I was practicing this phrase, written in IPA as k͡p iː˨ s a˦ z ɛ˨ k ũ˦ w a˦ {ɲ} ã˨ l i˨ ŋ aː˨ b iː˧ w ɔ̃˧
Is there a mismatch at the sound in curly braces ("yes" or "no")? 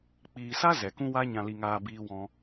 no